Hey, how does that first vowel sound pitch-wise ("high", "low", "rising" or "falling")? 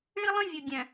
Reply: high